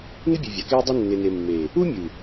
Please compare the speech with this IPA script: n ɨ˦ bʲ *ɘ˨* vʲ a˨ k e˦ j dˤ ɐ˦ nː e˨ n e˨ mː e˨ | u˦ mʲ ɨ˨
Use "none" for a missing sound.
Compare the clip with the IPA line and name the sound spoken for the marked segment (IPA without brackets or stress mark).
e˨